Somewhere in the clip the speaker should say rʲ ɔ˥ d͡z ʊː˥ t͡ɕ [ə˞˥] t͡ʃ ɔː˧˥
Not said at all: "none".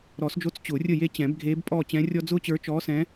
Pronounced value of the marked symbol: ə˞˧˥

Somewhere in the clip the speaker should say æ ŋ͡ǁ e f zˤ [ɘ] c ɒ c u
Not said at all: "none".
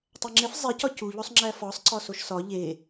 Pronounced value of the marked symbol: e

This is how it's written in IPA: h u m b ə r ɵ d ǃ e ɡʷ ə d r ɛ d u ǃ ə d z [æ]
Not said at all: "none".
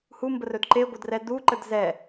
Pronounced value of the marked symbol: ɛ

